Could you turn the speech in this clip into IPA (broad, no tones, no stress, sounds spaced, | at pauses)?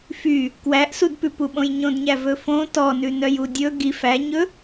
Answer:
f y | k w æ ʔ s u d p ʉ p u ɓ õ j ɲ õ d ɲ æ v ɵ f õ t ɔ n ʉ n œ j u dʲ ɵ ɡ i f æ ɲ ɵ